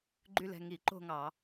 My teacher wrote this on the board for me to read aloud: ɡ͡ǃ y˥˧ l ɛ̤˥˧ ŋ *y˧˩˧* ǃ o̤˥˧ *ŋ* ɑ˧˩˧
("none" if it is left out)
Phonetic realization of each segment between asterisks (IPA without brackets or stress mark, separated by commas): i˧˩˧, ŋ